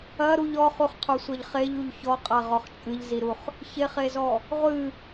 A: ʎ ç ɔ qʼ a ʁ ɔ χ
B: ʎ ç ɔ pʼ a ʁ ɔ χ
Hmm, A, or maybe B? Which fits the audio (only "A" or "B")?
A